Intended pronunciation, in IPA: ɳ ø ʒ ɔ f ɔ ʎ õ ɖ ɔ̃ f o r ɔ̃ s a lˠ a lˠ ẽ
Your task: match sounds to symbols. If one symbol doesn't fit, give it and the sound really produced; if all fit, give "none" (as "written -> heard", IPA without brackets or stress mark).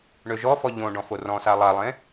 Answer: none